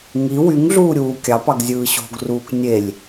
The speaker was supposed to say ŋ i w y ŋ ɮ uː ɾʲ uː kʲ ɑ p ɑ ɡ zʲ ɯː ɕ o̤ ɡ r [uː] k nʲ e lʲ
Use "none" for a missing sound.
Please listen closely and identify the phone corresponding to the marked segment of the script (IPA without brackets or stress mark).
uː